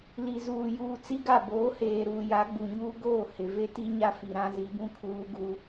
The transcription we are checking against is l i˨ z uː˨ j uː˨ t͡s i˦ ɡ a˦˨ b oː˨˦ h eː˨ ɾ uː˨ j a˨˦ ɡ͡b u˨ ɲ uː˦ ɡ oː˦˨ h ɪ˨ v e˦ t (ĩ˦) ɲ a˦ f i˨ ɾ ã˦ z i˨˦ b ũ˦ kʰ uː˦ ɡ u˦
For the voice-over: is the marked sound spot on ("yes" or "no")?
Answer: no